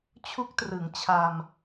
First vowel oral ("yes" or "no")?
yes